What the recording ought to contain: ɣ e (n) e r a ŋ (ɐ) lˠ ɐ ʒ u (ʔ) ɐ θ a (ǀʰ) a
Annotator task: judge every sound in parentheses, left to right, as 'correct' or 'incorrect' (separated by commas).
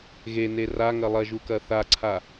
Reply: correct, correct, incorrect, correct